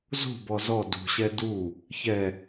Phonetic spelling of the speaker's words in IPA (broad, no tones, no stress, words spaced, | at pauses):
zo̤bɔ zɔ dṳɕɛ du | çɛ